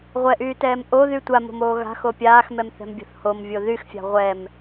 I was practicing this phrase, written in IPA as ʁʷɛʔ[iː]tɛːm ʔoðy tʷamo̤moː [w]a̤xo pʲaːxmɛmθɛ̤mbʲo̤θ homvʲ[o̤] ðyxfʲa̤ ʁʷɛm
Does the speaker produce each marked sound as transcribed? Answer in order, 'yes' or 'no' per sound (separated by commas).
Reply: no, no, no